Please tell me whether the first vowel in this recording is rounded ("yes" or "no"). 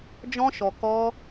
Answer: yes